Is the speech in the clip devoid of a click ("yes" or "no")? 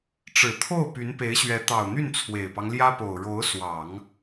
yes